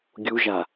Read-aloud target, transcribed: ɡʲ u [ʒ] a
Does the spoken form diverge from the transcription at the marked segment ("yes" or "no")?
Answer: no